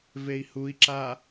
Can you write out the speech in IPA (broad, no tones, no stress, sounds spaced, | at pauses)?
v e i̯ h u i̯ ǁ a